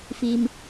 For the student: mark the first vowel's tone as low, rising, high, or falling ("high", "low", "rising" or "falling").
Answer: low